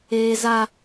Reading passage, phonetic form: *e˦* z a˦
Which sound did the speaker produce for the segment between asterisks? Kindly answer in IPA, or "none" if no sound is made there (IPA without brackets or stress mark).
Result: eː˦